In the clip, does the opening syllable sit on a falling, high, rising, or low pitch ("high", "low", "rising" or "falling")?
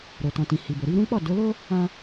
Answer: low